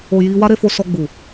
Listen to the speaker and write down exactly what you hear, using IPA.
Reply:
o˨ j i˧ w a˦ ɾ e˧ f o˧ s ɔ˧ ɡ͡b u˨

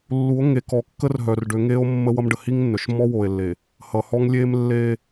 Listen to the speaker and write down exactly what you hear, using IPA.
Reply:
lː u˨˦ o̯ ŋ e˨ k ɔ˨ kː ə˦ r ɦ œ˨ r ɖ ø˨˦ ŋ e˦ o̯ mː ə˦ w ʌ˦ m ɖ ə˨ h i˦ ŋ nː œ˨ ʃ m ɔ˦ w o˨ e̯ lː e˨ | h ʌ˨ h ɔ˦ ŋ lʲ e˦ m lː e˦

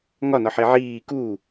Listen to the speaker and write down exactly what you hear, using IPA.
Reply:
ŋ ɒ n ɒ ħ e ʕ iː k u

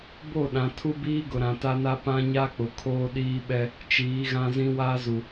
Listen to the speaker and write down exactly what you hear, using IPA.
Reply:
b o˦˨ ɗ ã˨ tʰ u˦ b iː˦ ɡ ʊ˨ ɾ ã˨ t a˦ n a˦ p ã˦ ɲ a˦ k͡p ʊ˨ kʰ oː˦ ɗ iː˦ ɓ ɛ˦ | t͡ʃ iː˨˦ ɣ ã˦ z ĩ˦ w aː˦ z u˨

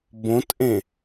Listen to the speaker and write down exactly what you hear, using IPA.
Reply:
b õ t ʔ ẽ

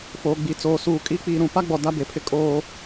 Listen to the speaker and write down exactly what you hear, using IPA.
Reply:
f oː˨ ɡ͡b i˨ t͡s oː˨ s uː˨ kʼ i˦ k͡p iː˨ ɾ ũ˨ p a˦ ɡ͡b ɔ˨ d a˦ b e˨ pʰ ɪ˦ kʼ oː˦

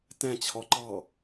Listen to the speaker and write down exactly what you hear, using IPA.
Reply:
t ɛ̃ t͡ɕʰ ɔ ǃ ɑ

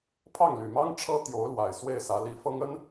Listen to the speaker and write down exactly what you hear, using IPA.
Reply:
pʰ ɑ˥˩ ŋ l y˨˩ m ɑ˥ ŋ ʈ͡ʂʰ ɤ˥ t̪ j o˧˥ ʊ̯ l w a˨˩ ɪ̯ s w e˥˩ ɪ̯ s ä˧˥ l i˧˥ f ɤ˥ ŋ ə˥ n

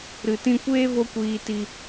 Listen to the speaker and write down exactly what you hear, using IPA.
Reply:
ɾ ɨ˨ t ĩ˧ kʷ eː˦ v o˦ kʷ iː˧ t i˧

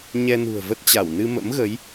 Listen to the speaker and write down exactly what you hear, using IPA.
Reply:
ɲ ɛ˧ n ṳ˨˩ ə̯ v ə˦˥ t̚ t͡ɕ a˧˩ w n ɨ˧ m ə̰˧˥ m ɣ ə˨˦ j

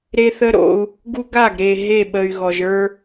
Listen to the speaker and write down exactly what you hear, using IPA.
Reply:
ɾ e˦ θ ə˦ ɾ o̰˦ u̯ | ɡ u˦ ɡ a˦˨ ɡ ɾ e˨ ɦ e˦˨ ɓ ə˨ y̯ ɣ ɔ˨ ʒ ə˞˦

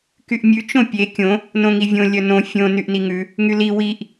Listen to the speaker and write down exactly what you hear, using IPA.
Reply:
k y ʔ mʲ ʉ t͡ʃ õ pʲ e kʲ õ | n õ ŋ i vʲ õ lʲ œ n õ fʲ õ n y ʔ n i ŋ ʉ | ŋ y l i w i ʔ

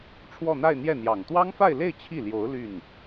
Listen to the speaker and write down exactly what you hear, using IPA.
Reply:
ʈ͡ʂʰ w ɔ˥˧ n̪ a˥˧ ɪ̯ n̪ j ɛ˥˩ n̪ j ɑ˨˩ ŋ t̪ w ɑ˥ ŋ f a˥˧ ɪ̯ l e˥˧ ɪ̯ t͡ɕʰ i˥˩ l j o˧˥ ʊ̯ l y˥˩ n

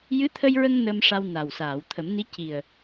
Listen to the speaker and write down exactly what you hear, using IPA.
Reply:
j ɨ˧˥ t̪ʰ ə˧ j ɹ ə˧ ŋ n ə˧ m ʂ a˧ w n a˨˩ w s aː˨˩˨ w t̪ʰ ə˨˩˦ m n i˧˥ c i˨˩ ə̯

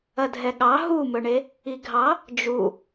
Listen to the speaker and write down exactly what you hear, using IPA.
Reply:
ɐ dʱ ɛ ɠ ɑ ɦ u m ɵ ɳ e | i ɡʱ ɑ | d͡ʒ u

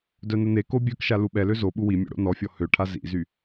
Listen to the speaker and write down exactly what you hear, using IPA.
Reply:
d œ n ə n e k o bʲ œ k ʃ a l u ɓ ɛ l ø z o ɓ u w i mʲ o̰ ɽ o̰ n ɔ fʲ ɔ h ø ʈʰ a z ḭ z y

